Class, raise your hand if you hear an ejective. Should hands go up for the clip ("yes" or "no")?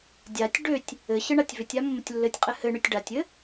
yes